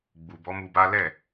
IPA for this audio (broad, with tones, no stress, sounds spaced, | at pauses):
ɡ͡b u˨ b ɔ˨˦ m u˧ b a˦ l ɛ˦˨